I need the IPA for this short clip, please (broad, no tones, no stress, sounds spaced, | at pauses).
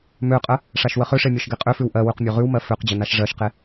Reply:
m ø qʼ ə | ʂ a ʃ w ə χ ø ʂ e mʲ ɒ ʃ ɡ e qʼ ø f ʉ w ʔ ɜ w ʉ q mʲ ø ʁ ʉ w m ɜ f ø q d͡ʑ ə n a ʃ ʐ ɜ ʃ q e